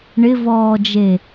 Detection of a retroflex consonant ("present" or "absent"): present